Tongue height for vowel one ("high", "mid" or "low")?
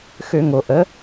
mid